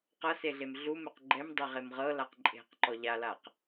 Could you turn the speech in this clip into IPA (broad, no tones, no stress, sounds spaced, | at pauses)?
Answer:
q ɤ s e ɮ e m ɮ u m e q ɡ͡ǃ ɛ m dˤ ɛ ʁ e m ʁ ɤ l a q ǃʼ e̤ q ǃ ɔ ʎ a l a q